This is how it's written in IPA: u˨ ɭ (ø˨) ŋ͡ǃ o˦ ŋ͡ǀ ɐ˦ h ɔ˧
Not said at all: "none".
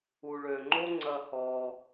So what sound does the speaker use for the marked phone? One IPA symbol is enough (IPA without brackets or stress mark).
ø˨